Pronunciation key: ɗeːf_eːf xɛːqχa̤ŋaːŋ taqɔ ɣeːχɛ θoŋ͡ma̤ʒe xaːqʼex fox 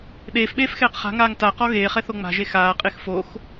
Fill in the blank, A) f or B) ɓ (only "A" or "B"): B